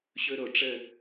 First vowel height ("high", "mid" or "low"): mid